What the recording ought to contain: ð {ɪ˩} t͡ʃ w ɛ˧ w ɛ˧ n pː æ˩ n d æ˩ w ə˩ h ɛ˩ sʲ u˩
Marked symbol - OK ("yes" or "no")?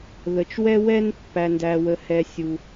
no